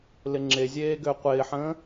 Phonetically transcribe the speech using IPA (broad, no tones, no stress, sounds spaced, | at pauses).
l ɪ ŋ͡ǁ e zʲ eː ɡ ø qʷ ɪː ħ ə̃ː